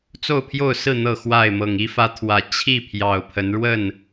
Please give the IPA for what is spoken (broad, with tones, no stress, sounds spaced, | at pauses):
t͡s o˥˨ ʊ̯ pʰ j o˥˨ ʊ̯ s ɹ̩˥˨ n̪ ɤ˥˨ x w a˥˨ ɪ̯ m ɤ˨˩ ŋ i˦ f ä˨˦ t̪ʰ w ä˨˩ t͡ɕʰ i˥˨ pʰ j ɑ˨˩ ʊ̯ pʰ ə˨˦ n ɻ w ə˥˨ n